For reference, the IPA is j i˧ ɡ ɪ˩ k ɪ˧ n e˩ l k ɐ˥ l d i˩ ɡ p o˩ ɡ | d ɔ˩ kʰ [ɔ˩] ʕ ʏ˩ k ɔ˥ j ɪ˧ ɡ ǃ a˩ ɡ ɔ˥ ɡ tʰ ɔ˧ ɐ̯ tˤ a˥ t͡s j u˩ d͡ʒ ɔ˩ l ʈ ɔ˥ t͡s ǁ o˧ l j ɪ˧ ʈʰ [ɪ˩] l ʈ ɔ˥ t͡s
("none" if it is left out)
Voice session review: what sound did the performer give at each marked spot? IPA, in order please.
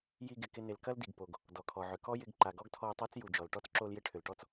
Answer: ɔ˩, ʏ˩

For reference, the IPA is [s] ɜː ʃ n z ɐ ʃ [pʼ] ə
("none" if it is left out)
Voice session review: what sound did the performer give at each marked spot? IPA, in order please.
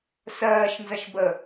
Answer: s, b

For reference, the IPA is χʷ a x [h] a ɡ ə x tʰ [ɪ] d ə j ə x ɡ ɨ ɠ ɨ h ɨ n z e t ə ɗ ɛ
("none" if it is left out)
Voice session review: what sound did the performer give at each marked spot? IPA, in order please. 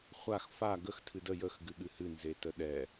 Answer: f, ɨ

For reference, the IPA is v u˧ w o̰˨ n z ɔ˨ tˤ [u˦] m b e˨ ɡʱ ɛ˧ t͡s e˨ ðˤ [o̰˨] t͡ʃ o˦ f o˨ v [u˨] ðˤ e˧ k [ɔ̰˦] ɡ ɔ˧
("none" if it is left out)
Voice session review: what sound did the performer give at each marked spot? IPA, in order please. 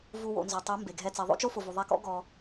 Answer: u˨˦, o̰˦, u˨, ɔ̰˦

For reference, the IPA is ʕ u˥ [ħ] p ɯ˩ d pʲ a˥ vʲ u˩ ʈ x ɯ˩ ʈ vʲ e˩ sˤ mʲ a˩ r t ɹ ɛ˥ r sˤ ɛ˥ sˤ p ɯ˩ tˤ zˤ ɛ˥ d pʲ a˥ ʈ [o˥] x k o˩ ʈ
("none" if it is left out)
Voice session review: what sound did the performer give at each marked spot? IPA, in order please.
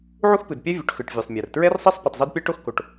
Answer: x, o˥

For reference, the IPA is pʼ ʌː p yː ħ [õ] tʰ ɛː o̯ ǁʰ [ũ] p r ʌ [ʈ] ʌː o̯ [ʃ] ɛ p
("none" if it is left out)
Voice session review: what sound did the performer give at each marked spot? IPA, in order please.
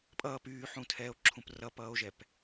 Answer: ũ, ũ, p, ʒ

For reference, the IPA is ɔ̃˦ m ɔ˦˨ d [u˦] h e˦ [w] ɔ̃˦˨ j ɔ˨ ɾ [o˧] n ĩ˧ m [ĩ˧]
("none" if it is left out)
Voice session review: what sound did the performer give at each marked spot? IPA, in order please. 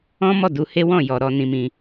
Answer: u˧, w, ɔ˧, ĩ˧

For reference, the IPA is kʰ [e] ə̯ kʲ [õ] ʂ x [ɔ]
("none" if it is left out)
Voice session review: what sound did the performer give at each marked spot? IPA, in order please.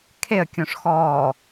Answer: e, õ, ɔː

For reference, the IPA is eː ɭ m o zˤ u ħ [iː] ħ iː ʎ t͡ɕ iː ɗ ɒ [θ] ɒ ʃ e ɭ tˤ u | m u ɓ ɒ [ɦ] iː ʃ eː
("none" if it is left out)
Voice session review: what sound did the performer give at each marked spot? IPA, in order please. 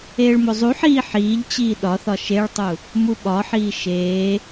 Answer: iː, θ, ħ

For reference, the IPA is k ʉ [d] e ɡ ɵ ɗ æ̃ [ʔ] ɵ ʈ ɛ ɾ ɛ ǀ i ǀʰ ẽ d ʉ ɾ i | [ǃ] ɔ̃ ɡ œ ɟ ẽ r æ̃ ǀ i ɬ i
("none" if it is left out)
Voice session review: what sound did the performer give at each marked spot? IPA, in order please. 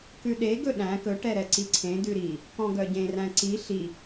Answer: ɗ, k, k

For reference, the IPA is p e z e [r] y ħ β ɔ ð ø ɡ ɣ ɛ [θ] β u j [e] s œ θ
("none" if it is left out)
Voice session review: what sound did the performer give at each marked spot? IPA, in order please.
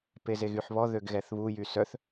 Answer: ɣ, θ, y

